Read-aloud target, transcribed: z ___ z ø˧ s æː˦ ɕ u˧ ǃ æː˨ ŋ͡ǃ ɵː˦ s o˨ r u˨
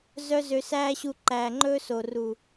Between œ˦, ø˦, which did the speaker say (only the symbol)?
œ˦